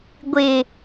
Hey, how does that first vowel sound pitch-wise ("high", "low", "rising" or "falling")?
low